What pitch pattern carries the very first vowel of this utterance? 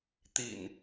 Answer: low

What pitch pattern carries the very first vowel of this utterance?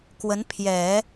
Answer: rising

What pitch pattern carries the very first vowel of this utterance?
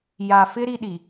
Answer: low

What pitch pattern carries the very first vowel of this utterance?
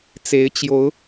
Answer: rising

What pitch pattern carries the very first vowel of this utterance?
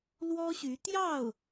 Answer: high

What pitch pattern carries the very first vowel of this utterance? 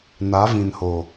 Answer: rising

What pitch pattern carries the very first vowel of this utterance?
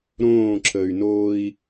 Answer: falling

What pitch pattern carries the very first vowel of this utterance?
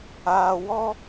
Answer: low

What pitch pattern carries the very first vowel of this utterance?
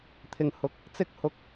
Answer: low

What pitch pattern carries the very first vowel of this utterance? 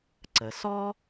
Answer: low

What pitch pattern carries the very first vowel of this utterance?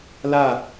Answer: falling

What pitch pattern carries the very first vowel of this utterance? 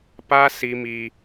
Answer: high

